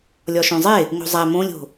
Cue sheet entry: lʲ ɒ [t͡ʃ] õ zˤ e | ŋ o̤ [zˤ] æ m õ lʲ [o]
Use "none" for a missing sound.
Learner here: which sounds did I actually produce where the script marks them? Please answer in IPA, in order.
ʃ, zˤ, o̤

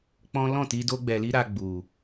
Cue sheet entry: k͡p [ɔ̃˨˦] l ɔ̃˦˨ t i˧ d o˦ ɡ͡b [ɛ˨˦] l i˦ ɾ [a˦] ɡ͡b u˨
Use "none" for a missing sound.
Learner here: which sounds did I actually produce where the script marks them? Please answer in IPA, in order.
ɔ̃˦, ɛ˧, a˧

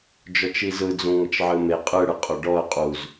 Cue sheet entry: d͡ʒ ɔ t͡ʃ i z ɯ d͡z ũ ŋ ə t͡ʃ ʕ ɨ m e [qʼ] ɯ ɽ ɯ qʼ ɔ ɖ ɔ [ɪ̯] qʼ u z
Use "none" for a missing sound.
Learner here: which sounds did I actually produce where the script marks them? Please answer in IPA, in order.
qʼ, ə̯

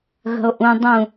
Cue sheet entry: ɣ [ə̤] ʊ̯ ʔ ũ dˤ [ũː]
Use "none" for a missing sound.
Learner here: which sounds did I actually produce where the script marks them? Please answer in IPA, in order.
ə̤, ũ

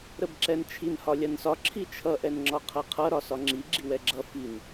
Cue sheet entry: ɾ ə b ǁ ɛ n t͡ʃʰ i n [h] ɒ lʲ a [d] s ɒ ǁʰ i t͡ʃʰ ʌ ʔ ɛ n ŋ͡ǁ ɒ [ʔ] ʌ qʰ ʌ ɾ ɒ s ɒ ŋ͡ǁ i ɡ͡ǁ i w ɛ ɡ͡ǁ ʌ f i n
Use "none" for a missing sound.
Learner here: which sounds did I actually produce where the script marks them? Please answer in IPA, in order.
h, n, qʰ

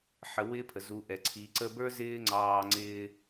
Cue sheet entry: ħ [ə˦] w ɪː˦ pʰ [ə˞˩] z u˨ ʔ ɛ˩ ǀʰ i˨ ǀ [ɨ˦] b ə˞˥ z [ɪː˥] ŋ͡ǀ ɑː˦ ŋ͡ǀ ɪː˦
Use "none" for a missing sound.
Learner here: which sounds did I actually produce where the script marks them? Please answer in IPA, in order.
ə˨, ə˩, ə˦, ɪː˥

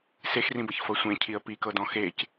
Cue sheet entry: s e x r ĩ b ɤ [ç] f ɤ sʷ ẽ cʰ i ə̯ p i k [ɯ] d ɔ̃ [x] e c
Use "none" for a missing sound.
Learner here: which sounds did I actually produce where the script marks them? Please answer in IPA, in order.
ç, ɤ, x

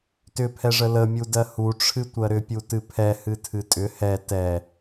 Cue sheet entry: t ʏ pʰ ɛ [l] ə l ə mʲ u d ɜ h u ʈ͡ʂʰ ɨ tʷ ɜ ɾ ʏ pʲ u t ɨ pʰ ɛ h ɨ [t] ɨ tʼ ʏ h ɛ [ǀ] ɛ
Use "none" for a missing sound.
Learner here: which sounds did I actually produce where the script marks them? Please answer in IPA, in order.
ʐ, tʰ, t

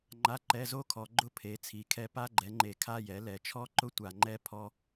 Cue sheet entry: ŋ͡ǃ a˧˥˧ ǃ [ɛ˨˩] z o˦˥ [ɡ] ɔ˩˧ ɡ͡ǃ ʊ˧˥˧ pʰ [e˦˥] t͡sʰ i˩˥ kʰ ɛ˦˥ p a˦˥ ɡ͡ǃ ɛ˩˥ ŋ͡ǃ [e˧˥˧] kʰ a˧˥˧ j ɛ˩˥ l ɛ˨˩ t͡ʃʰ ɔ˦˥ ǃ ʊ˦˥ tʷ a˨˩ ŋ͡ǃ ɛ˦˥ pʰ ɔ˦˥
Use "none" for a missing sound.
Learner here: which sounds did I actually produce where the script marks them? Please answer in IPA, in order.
ɛ˧˥˧, kʰ, e˩˥, e˨˩

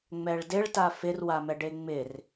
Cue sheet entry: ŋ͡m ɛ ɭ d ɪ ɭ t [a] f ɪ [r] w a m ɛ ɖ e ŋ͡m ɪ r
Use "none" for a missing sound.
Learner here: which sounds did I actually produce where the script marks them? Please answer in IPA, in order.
a, r

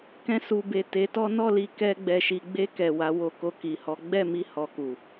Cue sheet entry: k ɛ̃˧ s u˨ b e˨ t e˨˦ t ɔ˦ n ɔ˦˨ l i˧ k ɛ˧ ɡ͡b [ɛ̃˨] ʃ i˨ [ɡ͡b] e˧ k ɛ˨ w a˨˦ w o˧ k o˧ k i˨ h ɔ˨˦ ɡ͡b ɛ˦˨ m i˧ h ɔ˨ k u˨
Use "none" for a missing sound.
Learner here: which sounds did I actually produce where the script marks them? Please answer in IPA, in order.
ɛ˨, ɡ͡b

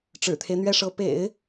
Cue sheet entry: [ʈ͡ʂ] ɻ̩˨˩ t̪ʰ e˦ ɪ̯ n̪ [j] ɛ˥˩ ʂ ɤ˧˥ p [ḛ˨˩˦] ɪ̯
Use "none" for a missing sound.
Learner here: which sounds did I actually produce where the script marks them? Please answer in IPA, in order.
ʈ͡ʂ, ɥ, ḛ˨˩˦

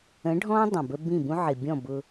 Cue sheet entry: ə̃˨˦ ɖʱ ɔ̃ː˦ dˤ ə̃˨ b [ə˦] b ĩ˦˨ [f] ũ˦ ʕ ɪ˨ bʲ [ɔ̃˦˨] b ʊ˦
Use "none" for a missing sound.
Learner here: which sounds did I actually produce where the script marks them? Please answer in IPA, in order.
ə˦, b, ɔ̃˦˨

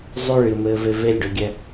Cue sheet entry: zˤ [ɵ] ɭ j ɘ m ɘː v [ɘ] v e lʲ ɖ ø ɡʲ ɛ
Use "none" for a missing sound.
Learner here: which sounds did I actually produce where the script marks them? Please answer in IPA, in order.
ø, e

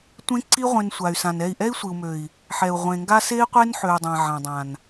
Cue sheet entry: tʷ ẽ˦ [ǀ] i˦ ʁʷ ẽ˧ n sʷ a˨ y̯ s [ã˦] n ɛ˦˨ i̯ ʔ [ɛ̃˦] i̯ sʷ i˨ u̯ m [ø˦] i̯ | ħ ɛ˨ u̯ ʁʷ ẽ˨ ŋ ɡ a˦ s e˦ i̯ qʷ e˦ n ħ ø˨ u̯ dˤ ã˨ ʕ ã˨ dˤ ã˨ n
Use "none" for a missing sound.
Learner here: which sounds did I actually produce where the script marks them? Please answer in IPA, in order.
ǀ, ã˨, ɛ˦, ø˨

